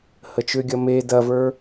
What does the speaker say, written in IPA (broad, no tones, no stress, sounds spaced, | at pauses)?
h ə t͡ʃ ʏ ɡʲ ɐ m e d ɐ v ə˞